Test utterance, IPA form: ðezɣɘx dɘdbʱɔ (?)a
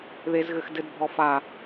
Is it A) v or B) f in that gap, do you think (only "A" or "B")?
B